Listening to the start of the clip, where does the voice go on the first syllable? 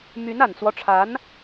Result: rising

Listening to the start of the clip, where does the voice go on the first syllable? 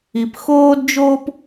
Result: low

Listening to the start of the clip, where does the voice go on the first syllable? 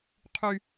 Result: high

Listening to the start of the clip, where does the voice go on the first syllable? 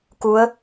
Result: rising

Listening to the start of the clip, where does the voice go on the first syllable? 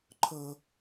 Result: high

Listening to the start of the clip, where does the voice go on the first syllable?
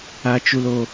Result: high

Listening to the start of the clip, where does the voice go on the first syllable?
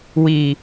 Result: low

